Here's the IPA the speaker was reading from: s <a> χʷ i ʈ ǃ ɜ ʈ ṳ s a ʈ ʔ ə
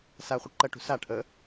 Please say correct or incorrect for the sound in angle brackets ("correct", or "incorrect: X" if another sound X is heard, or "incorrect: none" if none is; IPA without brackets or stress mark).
correct